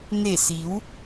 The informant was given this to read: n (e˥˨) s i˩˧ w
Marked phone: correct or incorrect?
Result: incorrect